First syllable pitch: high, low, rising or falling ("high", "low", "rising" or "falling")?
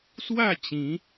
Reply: falling